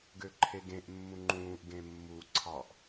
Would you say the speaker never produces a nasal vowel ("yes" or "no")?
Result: no